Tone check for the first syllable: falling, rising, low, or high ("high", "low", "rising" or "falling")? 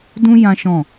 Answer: high